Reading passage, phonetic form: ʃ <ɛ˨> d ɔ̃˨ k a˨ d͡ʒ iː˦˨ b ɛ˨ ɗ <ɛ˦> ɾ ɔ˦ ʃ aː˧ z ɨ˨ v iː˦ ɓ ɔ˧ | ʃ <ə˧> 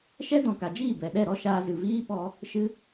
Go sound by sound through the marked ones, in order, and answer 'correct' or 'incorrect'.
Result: incorrect: ɛ˦, incorrect: ɛ˦˨, incorrect: ɨ˧

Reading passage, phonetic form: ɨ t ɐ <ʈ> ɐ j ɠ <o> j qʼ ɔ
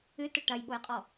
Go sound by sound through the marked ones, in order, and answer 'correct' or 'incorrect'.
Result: correct, correct

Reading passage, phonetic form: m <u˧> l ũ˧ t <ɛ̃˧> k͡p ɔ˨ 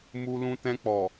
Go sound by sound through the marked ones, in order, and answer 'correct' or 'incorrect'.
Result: correct, correct

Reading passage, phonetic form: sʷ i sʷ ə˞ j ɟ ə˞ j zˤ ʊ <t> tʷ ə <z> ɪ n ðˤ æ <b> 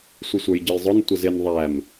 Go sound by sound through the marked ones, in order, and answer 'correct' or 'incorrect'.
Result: incorrect: n, correct, incorrect: m

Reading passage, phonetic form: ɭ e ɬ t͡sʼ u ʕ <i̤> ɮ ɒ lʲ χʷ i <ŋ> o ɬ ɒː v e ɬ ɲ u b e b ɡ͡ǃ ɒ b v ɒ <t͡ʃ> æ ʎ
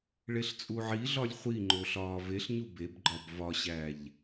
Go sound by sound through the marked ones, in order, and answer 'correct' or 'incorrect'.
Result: incorrect: i, incorrect: ŋ͡ǃ, incorrect: ɕ

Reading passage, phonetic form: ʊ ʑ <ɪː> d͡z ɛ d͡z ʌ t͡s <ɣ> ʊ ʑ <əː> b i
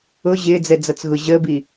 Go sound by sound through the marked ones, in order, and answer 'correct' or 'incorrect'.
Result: correct, correct, correct

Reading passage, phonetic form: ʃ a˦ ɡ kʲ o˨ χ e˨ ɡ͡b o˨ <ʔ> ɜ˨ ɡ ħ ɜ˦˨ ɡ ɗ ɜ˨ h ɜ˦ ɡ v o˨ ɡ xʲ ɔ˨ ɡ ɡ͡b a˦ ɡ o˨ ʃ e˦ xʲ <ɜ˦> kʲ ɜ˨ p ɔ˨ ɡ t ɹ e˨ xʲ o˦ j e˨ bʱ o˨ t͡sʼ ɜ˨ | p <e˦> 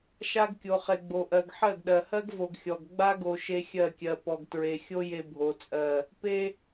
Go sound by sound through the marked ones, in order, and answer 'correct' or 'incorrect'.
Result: correct, incorrect: ɜ˦˨, correct

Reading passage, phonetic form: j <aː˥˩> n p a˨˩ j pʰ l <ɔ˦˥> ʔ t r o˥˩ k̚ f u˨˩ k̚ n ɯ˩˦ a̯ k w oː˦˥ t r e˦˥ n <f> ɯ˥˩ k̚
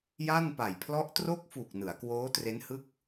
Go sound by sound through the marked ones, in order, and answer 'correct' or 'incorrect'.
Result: incorrect: a˥˩, correct, incorrect: h

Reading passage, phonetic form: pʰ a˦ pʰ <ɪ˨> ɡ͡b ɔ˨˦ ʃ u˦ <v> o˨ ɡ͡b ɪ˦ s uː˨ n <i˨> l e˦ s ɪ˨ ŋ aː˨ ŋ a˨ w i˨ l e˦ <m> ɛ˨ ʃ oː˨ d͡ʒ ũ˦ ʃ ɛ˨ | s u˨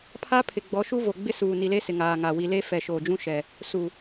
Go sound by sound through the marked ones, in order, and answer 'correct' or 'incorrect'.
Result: correct, correct, correct, incorrect: f

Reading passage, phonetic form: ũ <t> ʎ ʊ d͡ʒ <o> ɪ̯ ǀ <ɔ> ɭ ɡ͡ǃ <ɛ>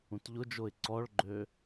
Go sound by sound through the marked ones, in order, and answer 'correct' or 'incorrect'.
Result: correct, correct, correct, incorrect: ø

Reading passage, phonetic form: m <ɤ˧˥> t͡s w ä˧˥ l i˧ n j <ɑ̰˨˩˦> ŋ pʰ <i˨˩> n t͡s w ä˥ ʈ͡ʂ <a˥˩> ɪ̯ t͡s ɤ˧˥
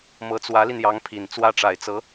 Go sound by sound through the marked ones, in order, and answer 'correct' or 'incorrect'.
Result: correct, incorrect: ɑ˧˥, correct, incorrect: a˨˩

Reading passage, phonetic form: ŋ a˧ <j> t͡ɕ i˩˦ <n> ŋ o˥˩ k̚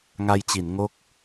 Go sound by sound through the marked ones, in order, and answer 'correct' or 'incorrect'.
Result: correct, correct

